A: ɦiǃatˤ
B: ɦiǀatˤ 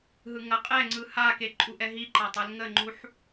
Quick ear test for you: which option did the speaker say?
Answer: A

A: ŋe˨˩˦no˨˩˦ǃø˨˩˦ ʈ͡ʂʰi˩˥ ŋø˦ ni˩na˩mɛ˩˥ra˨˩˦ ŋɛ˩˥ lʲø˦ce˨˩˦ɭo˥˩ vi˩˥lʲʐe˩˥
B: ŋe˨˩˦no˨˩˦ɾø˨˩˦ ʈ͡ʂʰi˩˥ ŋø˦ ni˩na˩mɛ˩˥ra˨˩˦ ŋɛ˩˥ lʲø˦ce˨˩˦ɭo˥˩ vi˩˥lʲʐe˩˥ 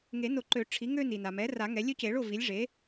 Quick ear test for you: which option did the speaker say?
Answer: A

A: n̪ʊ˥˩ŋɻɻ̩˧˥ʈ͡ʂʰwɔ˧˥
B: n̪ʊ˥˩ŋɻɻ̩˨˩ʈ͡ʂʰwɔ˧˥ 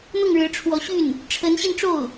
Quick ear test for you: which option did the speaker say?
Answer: A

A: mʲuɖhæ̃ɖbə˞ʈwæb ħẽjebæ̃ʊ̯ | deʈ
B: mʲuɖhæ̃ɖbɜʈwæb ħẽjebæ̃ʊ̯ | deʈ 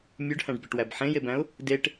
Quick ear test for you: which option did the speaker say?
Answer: B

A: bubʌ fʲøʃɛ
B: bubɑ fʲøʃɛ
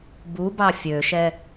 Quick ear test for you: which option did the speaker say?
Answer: B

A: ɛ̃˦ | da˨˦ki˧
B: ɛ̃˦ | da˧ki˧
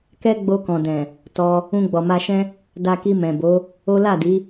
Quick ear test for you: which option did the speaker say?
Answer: B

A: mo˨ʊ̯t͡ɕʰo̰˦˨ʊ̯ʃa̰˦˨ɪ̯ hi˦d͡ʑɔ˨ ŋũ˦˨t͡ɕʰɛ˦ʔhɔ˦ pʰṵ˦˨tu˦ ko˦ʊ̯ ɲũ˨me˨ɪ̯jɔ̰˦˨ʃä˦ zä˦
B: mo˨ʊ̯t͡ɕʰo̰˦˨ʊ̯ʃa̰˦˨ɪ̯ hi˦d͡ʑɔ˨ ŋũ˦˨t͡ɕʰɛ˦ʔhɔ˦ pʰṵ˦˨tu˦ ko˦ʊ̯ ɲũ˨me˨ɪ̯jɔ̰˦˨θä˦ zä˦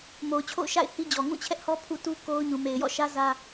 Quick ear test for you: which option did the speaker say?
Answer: A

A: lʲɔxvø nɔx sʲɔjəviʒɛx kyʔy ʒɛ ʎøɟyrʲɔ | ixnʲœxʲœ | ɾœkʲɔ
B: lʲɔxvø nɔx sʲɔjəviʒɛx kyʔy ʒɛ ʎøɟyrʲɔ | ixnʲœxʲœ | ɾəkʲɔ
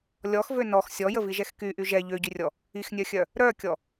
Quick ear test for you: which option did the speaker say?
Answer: A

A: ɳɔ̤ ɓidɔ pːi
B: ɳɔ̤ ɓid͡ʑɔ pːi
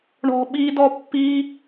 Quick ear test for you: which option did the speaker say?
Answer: A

